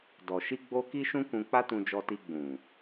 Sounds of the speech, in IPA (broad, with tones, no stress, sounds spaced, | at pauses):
d ɔ˨ ʃ i˧ ɡ͡b o˧ k i˦ ʃ ũ˦ k ũ˧ k͡p a˦ t ũ˧ d͡ʒ ɔ˧ t i˧ ɡ͡b ũ˨